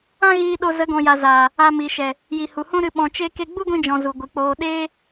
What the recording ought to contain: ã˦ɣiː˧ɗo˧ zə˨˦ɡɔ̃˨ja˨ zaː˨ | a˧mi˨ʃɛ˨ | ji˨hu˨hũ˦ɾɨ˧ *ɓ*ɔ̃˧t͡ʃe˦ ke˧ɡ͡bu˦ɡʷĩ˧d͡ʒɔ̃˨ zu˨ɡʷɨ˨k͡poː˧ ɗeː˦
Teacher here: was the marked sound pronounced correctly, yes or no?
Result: yes